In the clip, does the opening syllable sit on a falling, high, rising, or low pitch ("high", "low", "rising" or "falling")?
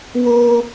high